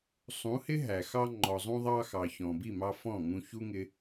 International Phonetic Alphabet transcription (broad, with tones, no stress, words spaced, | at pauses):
sˤũ˨˦hɪ˦ ɦæ˨xɑ˧ ŋ͡ǃɔ˨zˤũ˧ðˤɑ˧xɑ˨ çɔ̃˨bi˦˨mɑ˧ fɔ̃˦˨ŋũ˧çu˦ŋɪ˧